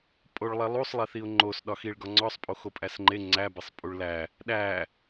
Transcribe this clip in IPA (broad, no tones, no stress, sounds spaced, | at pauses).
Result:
pʼ o ɭ lˠ e lˠ u sˤ lˠ e θ i ʊ̯ ŋ͡ǃ o s ɗ ɒ x i ɭ ɡ ɒ ŋ͡ǀ ɒ sˤ pʼ o x o pʼ æ s ŋ͡ǃ e ŋ͡ǀ æ b e sˤ pʼ u ɭ l æ | ɗ æ